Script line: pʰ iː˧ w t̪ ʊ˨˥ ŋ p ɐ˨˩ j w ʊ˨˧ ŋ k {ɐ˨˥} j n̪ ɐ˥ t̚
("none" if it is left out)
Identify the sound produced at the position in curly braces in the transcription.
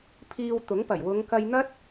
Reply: ɐ˧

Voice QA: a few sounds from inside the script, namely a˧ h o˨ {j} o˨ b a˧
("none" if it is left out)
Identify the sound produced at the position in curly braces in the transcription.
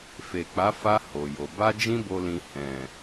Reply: j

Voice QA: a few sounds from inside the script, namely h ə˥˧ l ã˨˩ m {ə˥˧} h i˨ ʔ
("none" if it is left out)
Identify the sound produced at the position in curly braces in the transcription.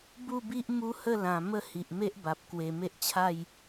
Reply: ə˥˧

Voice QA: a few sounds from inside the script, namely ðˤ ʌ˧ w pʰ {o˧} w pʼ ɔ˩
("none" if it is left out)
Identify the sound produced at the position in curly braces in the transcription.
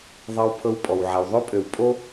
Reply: ɤ˧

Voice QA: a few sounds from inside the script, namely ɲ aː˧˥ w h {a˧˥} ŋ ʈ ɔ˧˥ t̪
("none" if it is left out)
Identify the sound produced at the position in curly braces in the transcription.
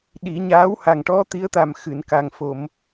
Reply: a˨˩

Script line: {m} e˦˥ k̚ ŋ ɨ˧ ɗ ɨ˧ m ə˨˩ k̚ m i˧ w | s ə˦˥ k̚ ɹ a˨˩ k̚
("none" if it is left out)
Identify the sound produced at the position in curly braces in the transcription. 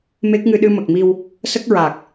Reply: m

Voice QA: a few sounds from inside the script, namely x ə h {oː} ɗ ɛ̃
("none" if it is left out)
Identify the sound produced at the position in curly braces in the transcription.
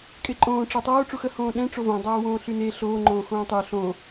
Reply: õː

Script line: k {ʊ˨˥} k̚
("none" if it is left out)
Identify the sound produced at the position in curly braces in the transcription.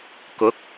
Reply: ʊ˨˥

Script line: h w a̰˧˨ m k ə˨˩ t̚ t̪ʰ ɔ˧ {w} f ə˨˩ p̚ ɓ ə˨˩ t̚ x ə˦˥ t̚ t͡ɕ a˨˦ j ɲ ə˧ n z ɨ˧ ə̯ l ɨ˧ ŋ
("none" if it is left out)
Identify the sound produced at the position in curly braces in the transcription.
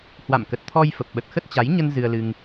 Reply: j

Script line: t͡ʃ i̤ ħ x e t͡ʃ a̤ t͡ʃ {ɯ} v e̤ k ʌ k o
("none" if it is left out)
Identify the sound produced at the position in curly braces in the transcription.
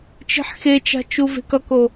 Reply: u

